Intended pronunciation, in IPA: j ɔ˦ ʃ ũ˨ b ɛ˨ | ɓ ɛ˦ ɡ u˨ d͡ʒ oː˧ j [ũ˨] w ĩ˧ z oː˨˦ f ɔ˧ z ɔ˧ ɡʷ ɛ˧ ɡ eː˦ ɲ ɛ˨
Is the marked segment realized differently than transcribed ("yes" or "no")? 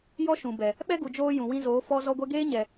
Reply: no